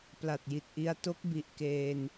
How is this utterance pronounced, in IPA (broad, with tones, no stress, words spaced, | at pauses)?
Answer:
pla˨˩t̚ji˨˩t̚ ʔi˧a̯ to˦˥k̚ bi˨˩ʔkeː˧n